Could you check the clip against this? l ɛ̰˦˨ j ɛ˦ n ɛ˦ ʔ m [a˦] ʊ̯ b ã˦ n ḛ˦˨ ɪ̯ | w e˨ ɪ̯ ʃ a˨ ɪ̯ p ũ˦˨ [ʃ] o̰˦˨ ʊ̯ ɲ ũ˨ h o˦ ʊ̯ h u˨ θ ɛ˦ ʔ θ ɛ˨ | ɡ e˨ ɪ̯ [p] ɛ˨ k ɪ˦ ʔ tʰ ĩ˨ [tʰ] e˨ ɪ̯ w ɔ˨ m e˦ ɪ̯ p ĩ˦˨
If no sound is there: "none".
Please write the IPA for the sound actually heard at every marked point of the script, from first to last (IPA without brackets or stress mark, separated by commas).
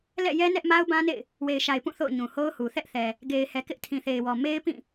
a˦, θ, h, θ